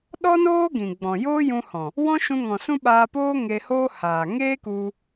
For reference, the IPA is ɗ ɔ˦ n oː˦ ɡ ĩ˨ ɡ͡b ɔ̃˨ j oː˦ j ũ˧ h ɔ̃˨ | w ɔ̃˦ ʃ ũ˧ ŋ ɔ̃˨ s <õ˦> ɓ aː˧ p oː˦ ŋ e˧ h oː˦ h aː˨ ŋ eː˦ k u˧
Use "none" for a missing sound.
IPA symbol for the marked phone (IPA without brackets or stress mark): ũ˦